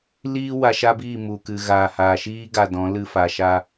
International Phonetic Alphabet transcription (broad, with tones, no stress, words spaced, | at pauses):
liː˦ wa˧ʃa˦biː˦˨mu˨ kɨ˨ɣaː˨haː˨ʃiː˦ ɡa˧dɔ̃˨˦ lɨ˧fa˨ʃa˧